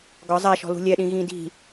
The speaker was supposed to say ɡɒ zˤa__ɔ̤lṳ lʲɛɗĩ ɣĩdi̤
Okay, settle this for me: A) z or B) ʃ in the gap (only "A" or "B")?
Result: B